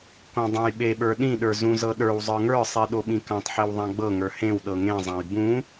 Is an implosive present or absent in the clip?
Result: present